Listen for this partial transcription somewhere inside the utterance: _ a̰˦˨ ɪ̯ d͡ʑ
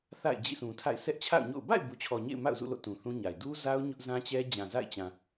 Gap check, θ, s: θ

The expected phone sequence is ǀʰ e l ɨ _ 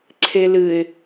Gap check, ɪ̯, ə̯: ɪ̯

